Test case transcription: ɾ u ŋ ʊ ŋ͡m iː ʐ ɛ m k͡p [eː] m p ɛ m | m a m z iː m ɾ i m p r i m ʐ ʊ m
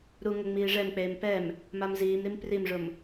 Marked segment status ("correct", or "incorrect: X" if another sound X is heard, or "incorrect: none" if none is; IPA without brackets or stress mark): correct